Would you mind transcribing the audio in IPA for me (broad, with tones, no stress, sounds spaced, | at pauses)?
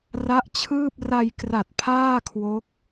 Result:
r a˦˥ ʔ t͡ɕʰ ɯː˥˩ p̚ r a˧ j k r a˨˩ t̚ pʰ aː˥˩ kʰ w o˦˥ k̚